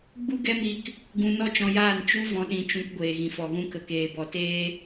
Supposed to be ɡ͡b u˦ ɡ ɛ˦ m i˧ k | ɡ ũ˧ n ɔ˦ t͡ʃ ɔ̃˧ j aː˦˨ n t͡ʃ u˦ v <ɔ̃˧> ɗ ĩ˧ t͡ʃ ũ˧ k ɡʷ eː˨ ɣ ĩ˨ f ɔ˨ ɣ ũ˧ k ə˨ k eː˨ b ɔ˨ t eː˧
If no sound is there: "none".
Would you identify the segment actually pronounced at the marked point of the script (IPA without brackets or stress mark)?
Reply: ɔ̃˧